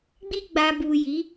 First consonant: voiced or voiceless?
voiced